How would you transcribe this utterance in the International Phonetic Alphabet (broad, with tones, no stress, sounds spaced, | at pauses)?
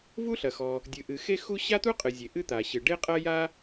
v u˥ ɬ ɐ˩ x ɔ˩ | dʲ ɨ˩ ʔ ɨ˩ x e˥ x u˥ ɕ a˥ t̪ u˥ qʼ ɨ˩ zʲ e˩ ʔ ɨ˥ t̪ a˩ ɕ ɨ˩ ɖ e˥ qʼ ɐ˥ j a˥